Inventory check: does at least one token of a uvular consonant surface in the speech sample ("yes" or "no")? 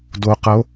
yes